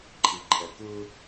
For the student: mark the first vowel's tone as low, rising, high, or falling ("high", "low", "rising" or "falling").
low